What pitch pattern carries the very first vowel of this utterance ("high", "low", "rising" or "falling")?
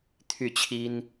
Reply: falling